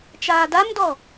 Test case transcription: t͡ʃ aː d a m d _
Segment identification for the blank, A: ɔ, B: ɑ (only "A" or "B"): A